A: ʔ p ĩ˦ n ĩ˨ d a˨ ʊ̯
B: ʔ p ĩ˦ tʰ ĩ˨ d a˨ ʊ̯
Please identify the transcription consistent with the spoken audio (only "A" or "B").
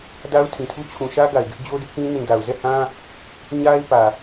A